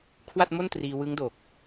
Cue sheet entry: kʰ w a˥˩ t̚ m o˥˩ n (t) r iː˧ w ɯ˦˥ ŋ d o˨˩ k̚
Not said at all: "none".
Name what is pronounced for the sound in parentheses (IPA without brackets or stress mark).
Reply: t